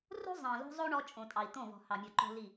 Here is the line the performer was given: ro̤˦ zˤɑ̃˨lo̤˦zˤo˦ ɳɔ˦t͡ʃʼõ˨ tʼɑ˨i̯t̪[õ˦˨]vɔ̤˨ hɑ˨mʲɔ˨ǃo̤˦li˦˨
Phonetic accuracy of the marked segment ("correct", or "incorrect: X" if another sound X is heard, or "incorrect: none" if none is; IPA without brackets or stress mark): correct